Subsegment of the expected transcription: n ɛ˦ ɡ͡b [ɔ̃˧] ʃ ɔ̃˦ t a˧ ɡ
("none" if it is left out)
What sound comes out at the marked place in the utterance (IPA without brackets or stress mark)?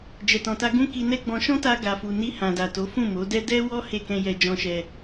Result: ɔ̃˧